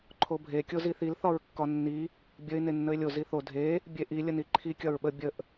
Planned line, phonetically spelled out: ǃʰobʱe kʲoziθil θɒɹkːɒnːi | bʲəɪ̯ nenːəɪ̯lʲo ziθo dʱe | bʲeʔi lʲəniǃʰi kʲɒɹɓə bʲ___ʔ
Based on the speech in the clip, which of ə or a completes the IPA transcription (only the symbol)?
ə